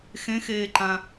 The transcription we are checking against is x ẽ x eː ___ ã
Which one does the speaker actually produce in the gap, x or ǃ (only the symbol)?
ǃ